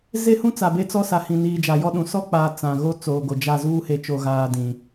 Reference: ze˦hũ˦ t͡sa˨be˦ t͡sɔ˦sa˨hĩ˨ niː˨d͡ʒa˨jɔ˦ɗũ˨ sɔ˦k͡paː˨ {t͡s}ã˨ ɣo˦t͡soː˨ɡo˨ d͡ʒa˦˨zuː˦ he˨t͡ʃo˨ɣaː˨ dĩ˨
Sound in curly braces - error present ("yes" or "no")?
no